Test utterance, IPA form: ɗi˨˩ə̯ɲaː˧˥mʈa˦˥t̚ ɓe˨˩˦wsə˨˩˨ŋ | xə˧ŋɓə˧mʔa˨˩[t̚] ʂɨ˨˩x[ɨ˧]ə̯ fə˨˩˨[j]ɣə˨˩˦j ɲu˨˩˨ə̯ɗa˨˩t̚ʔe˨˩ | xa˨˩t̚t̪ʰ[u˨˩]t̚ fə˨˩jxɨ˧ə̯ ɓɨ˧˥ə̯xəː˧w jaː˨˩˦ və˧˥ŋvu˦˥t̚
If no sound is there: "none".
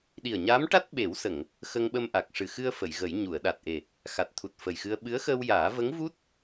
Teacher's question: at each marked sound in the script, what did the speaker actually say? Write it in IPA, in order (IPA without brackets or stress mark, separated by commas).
k̚, ɨ˧, j, u˨˩